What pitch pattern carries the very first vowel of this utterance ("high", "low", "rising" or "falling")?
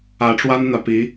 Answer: rising